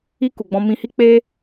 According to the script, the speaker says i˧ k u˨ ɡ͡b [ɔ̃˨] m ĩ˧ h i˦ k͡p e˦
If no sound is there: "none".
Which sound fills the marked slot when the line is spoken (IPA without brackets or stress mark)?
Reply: ɔ̃˧